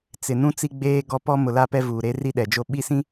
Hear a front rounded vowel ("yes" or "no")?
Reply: no